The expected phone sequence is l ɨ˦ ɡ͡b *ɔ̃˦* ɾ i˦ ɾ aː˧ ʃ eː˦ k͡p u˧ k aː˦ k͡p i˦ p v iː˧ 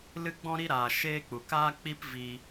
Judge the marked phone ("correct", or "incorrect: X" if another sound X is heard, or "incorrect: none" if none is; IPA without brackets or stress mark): correct